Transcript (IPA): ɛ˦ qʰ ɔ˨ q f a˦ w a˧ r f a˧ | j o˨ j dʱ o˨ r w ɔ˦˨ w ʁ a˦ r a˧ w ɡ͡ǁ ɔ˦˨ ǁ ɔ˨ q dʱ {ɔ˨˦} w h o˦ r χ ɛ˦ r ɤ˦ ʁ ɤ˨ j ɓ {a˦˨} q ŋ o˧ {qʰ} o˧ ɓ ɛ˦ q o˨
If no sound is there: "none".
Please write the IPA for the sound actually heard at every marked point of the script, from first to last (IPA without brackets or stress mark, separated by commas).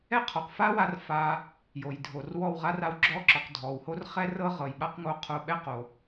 ɔ˨, a˦, qʰ